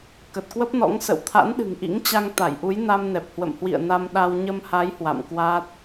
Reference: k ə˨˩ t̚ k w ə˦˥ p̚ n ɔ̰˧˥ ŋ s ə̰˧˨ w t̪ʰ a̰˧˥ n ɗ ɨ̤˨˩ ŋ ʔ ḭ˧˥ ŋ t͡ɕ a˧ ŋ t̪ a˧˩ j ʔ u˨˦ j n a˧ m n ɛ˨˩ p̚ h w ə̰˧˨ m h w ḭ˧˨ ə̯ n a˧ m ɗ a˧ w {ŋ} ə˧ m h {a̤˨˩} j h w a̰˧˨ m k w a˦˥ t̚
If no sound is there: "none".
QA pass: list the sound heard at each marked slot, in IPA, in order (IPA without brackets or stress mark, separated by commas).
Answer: ɲ, a˨˦